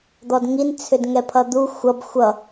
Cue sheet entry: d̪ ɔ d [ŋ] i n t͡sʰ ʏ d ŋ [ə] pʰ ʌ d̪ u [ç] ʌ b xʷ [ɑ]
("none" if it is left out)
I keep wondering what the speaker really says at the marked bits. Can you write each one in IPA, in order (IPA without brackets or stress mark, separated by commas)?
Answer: ŋ, ɛ, xʷ, ʌ